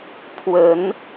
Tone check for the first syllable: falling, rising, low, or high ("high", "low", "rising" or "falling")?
rising